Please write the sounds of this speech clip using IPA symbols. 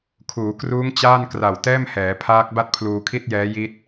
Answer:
kʰuː˩˦kruː˦˥ŋ t͡ɕaː˥˩nkra˨˩w tɛː˥˩mhɛː˩˦pʰaː˦˥k̚ba˥˩t̚ pʰluː˧kʰi˥˩t̚jɛː˦˥ ji˦˥t̚

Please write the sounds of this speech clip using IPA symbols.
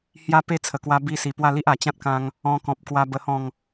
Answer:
hja˦ pe˦t͡sʰə˨˩kwa˧ bi˧si˨˩ pwa˥˧li˦ʔ a˨˩t͡ɕã˦t̚kã˧ŋ | ɔ̃˧kɔ̃˨p̚kwa˧ bə˧ hɔ̃˥˧ŋ

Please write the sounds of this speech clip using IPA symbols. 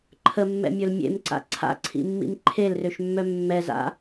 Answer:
ǃʰəmːɛ̰mʲɵl mʲḛmǀa̰ ǀʰa̰ǀʰḭmːḭm ǃʰelrøʃmːœ mːɛza̰

